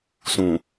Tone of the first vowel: low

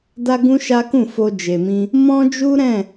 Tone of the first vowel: high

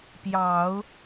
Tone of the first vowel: low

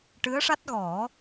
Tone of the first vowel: rising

